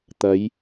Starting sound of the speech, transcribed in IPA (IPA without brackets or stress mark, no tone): t̪